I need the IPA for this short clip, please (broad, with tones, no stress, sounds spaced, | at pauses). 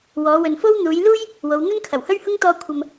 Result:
w ɔː˨˧ w ɵ˨ n f o˥ w n̪ uː˨˧ j l uː˥ j | w o˨˧ w n̪ ɵ˥ n kʰ ɐ˨˩ w h ɵ˥ ɥ h ʊ˥ ŋ t̪ ɔː˧ kʷʰ ɐ˨ m